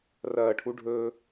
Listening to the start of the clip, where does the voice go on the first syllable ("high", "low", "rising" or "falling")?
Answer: falling